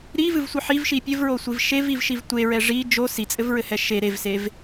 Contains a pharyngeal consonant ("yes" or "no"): yes